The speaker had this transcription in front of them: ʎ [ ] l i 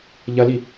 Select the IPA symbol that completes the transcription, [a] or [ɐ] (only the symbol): ɐ